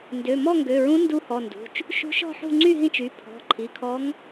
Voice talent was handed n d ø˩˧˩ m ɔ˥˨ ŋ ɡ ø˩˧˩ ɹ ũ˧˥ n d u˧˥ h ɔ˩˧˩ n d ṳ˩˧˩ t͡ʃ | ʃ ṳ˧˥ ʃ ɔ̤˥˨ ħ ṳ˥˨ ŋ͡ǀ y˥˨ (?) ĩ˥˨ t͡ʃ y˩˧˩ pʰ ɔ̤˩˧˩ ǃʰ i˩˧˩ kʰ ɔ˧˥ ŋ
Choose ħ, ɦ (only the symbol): ɦ